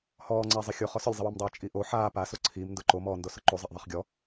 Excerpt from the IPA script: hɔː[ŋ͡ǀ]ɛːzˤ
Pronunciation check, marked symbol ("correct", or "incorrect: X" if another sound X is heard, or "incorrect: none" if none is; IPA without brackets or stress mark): correct